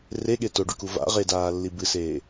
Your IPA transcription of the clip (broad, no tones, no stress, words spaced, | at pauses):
reɠe toɖuku va̰ ʁedaːlːi bɨseː